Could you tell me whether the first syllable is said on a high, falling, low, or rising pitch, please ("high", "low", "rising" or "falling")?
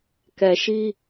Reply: low